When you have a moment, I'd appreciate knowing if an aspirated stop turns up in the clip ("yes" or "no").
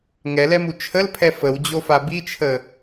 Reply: yes